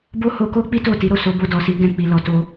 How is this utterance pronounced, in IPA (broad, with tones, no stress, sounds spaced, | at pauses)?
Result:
b o˦ h o˧ k o˦ k͡p i˦ t o˦˨ t i˨˦ ɾ o˦˨ s o˨˦ b o˧ d ɔ˨ s i˨˦ ɡ ɛ̃˧ k͡p i˨ l ɔ˨ t o˧